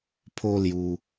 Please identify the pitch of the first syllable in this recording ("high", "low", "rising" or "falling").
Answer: high